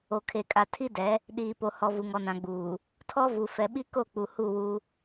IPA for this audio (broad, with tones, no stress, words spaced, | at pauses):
o˨kʰe˨kʼa˨ tʰi˦dɛ˨˦ | ɗiː˨po˨hɔ˨ vu˨ŋɔ˨nã˨ɡ͡buː˨ | tʰɔ˦vu˨ fɛ˨ɓi˦ ko˦˨k͡pu˨ hu˦˨wu˦